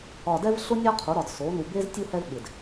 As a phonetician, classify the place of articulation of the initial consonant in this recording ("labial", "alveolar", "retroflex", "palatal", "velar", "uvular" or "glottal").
alveolar